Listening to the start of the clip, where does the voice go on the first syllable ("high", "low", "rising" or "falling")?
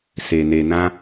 low